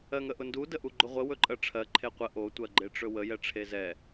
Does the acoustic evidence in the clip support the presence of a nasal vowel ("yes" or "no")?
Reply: no